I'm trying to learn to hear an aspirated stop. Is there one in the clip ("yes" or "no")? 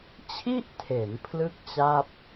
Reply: yes